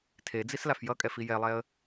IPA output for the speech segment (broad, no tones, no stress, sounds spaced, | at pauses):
tʰ e d͡z i s l a f j ʌ kʼ ɛ f i j ɛ lˠ ɛ ə̯